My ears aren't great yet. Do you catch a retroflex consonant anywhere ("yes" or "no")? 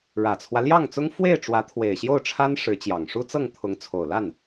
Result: yes